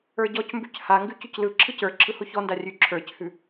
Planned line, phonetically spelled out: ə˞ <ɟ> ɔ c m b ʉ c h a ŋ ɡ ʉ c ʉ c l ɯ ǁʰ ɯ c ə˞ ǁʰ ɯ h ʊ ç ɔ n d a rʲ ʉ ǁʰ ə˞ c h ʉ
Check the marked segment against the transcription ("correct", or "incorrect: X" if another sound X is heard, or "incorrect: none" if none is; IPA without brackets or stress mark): correct